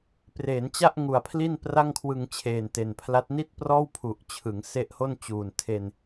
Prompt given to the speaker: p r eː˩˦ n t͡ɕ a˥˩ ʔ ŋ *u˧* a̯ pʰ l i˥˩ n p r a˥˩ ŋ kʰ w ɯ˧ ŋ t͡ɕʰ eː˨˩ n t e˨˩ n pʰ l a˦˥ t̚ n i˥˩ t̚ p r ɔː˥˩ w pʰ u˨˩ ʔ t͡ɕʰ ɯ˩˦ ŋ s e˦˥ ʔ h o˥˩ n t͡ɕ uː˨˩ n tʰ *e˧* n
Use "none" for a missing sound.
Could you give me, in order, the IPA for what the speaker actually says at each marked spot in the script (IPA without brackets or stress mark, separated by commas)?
u˨˩, e˧